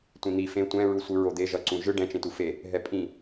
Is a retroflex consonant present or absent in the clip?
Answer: present